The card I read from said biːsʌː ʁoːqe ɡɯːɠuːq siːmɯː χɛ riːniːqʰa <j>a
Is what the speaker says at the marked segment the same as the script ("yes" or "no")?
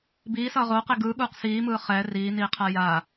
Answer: yes